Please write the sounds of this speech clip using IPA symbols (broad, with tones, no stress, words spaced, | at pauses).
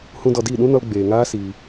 hũ˦dɔ˧ diː˦˨ɗũ˦nɔ˧l ɡ͡beː˨ŋaː˦ siː˧